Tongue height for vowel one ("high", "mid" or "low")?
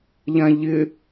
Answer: low